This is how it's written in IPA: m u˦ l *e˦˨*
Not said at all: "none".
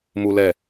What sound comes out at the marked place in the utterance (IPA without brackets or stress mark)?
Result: ɛ˦˨